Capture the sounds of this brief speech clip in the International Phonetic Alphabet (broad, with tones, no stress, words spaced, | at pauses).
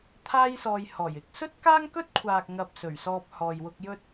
t̪ʰaː˥jsɔː˧jhɔː˨˩jɪ˨˥k̚ sɵ˥t̚kaː˥ŋkɵ˥t̚kʷʰaː˨k̚ ŋɐ˧p̚sɵ˨˩ɥsɔː˧p̚ hɔː˨jwʊ˧k̚jɵ˥t̚